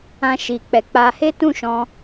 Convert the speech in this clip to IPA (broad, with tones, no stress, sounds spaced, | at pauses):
ã˦ ʃ i˧ k͡p ɛ˧ k͡p a˧ h e˦ t ũ˦˨ ʃ ɔ̃˧